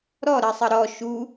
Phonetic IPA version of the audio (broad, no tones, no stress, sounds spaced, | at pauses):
ɾ ɔ ɾ ɜ sˤ ə ɾ ɔ ʃ u